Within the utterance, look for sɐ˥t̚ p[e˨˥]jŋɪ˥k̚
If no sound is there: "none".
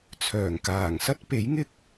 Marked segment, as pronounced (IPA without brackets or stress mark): e˨˥